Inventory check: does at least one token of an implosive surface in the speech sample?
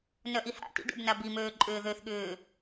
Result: yes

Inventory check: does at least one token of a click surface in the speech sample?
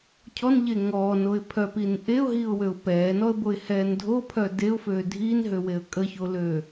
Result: no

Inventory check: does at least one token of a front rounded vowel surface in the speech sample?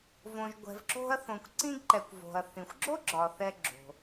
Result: no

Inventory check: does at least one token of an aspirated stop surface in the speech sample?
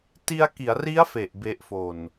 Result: no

